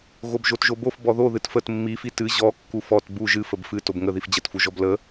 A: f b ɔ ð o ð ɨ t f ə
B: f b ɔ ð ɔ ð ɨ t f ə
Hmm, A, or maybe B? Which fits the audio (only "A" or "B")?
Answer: A